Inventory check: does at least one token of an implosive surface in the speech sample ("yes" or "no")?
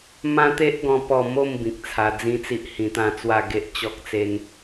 no